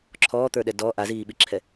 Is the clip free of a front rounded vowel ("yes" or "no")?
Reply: yes